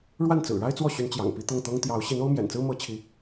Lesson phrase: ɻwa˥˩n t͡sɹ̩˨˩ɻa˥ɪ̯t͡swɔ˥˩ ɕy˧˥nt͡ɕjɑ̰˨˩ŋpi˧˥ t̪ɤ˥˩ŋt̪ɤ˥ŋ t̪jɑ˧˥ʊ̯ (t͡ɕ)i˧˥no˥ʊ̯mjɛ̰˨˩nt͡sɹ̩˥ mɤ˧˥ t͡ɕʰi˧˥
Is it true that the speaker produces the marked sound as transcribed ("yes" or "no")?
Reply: no